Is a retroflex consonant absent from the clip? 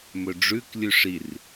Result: no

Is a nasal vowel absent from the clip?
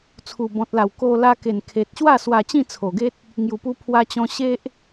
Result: no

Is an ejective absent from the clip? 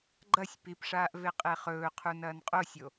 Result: no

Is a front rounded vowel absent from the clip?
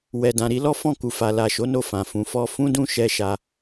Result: yes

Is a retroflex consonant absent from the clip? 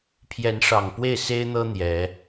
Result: no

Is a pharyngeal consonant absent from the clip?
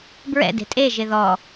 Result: yes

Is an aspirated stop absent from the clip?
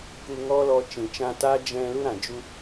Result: yes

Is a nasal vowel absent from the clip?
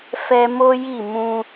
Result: no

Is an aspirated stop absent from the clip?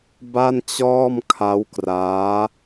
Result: no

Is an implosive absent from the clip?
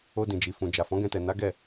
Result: yes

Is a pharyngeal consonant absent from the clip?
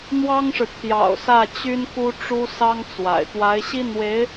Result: yes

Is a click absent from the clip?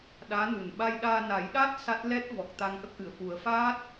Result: yes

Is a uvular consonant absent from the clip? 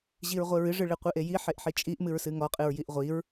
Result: no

